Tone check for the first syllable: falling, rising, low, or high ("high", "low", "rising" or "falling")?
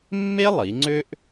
high